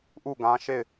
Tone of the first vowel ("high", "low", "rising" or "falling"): falling